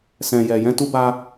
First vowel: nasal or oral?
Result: nasal